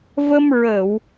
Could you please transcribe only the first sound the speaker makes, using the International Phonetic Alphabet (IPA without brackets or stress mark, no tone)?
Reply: v